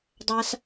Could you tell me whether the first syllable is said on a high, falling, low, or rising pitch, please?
high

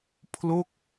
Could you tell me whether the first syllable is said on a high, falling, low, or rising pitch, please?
falling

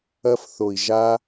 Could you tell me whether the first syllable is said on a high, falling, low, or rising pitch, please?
high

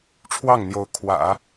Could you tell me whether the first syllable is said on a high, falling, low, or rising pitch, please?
falling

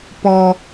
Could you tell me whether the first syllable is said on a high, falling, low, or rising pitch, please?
low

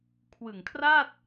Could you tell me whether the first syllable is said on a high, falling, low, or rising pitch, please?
low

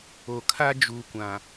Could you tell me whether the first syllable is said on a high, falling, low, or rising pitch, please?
low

